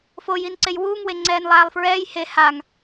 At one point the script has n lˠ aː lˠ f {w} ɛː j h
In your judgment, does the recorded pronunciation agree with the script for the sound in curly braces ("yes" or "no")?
no